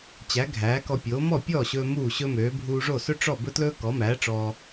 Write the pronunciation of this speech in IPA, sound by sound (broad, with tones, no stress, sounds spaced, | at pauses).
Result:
t͡ɕ æ˩˥ ɡʱ æː˩˥ k ɔ˧ pʲ oː˩˥ m ɔ˥˩ pʲ ɔː˥˩ ɕ ɵː˧ m uː˥˩ ɕ ɵ˥ m øː˩˥ bʱ uː˧ ʐ o˥˩ s ɵ˥ ʈ͡ʂ ɔ˥˩ b ɵ˥ t l ɵː˥ k ɔ˩˥ m æː˩˥ ʈ͡ʂ ɔː˧